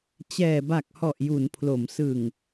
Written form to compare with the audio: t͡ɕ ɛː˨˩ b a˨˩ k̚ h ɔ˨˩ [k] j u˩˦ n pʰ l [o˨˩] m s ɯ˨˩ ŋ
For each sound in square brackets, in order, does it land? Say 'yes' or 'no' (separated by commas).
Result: no, no